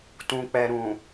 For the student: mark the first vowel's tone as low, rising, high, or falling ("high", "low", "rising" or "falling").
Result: low